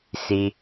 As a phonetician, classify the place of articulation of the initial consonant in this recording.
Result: alveolar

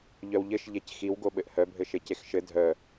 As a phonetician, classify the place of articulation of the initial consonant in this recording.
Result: palatal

